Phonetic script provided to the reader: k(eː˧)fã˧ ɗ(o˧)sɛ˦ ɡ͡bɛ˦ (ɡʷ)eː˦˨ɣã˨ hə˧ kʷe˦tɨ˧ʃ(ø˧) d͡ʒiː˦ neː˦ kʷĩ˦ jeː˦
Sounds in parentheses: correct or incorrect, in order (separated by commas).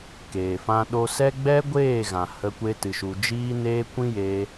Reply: incorrect, correct, correct, incorrect